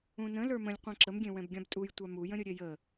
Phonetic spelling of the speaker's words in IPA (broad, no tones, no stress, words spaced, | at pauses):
ũnə̃ lə˞mə̃lʲ qʷãǁəmɡʲẽ wɛ̃bɡʲãbtʼuj tʷamujə̃ɾʲə ɾʲejə